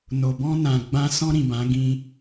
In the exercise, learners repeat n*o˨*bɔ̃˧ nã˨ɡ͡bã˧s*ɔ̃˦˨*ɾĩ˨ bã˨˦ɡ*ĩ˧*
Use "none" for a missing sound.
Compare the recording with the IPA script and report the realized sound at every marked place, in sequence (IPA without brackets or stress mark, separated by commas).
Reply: o˨, ɔ̃˧, ĩ˧